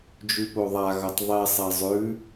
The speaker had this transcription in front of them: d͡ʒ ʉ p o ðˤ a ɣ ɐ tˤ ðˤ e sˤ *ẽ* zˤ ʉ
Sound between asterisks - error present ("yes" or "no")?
yes